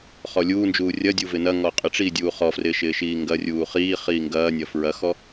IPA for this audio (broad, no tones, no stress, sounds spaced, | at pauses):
χ ɔ lʲ uː n d͡ʒ uː rʲ ɐ dʲ u v ɪ n ɐ ŋ ɔ qʼ ɪ ʈ͡ʂ iː dʲ uː χ ɔ f r ɪː ʃ ɪː ʃ iː ŋ ɡ ɐ rʲ uː χ iː χ iː ŋ ɡ ɐː nʲ ɐ f ɹ ɐ x ɔ